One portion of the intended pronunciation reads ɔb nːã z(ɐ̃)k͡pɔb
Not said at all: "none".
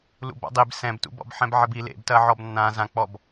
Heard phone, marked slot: ã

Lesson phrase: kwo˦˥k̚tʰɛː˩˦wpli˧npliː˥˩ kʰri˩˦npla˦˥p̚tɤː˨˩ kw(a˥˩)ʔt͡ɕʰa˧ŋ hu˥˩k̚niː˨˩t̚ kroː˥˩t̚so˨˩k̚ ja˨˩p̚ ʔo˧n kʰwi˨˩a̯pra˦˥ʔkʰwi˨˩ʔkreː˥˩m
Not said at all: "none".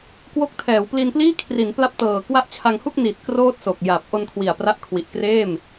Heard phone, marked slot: a˥˩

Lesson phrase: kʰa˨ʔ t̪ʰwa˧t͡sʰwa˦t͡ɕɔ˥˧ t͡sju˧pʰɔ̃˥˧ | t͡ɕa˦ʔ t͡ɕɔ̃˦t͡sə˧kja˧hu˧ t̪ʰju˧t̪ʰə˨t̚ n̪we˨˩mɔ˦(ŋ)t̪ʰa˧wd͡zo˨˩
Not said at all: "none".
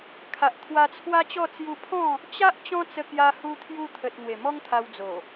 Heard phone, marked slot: ŋ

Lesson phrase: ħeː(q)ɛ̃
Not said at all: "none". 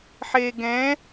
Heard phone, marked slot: ɡ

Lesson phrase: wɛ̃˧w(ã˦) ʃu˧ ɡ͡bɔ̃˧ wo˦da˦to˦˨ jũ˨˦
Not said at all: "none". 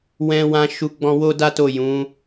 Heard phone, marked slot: ã˧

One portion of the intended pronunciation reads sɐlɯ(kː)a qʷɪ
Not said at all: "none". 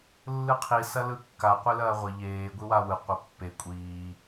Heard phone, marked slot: kː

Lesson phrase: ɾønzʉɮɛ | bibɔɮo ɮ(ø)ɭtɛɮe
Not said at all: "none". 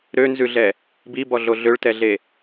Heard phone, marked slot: ø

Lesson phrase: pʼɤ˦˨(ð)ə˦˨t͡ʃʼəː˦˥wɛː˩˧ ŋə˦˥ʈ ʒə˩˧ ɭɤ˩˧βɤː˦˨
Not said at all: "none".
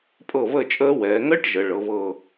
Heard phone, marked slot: β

